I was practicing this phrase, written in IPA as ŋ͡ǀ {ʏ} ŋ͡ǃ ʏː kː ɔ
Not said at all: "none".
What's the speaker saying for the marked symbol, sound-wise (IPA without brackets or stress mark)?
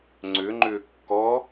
ʏ